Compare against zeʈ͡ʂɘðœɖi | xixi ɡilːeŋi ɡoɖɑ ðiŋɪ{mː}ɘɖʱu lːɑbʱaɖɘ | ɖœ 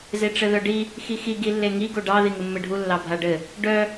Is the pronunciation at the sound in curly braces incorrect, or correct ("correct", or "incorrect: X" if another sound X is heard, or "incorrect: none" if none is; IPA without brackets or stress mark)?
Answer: correct